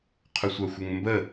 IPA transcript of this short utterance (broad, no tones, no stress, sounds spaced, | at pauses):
qʰ u sʷ a xʷ ə ŋ m b ə